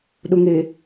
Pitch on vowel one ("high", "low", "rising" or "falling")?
low